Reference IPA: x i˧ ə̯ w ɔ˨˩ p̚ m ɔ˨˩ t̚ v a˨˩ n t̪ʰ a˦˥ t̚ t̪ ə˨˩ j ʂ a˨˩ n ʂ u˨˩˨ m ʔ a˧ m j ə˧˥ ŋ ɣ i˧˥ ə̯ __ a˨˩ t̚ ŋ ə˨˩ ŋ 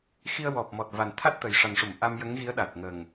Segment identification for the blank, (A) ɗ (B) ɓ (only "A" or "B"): A